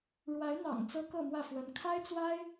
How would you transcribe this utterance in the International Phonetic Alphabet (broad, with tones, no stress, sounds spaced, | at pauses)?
ɻ w a˧˥ ɪ̯ n̪ ɑ̰˨˩ ŋ t͡s ɤ˥ k ɤ˥˧ m w ä˥˩ f w ə˧˥ n kʰ a˥ ɪ̯ t͡s w a˥ ɪ̯